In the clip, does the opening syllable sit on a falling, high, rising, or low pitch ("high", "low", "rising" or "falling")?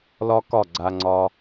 high